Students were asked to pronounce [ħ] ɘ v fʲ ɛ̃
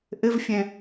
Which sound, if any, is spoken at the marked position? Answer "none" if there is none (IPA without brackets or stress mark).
ʔ